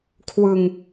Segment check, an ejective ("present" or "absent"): absent